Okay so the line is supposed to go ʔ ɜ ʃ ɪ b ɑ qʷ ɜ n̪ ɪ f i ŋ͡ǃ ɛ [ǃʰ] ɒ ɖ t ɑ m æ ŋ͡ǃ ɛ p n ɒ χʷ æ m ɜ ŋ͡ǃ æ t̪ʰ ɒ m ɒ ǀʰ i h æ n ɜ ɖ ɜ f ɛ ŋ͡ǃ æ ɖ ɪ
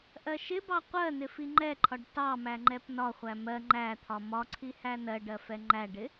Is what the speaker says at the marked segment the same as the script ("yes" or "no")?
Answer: yes